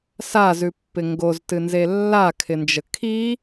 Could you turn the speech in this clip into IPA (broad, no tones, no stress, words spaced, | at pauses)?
sazʉpːɪ ŋɡoztɨnze lːakʰɪnd͡ʒə kʰi